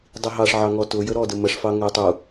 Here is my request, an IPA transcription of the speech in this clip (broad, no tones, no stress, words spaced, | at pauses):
dˤiɦɑʂʕɑŋɔ tʊ jəɾɔdə məʂfɑ ŋəjtˤu